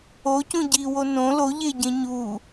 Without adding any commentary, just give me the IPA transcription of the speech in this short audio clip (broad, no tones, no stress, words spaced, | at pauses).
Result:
ocũ ɟiwo nõ loʎeɟẽ ɲu